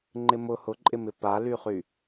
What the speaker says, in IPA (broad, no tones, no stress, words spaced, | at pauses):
ŋ͡ǃɪmʊ hʊǃʼɪmɪ palyχy